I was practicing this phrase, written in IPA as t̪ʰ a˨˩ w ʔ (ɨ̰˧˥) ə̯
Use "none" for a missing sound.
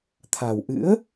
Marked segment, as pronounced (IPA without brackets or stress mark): ɨ̰˧˥